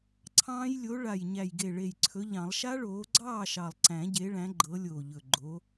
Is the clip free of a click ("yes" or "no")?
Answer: no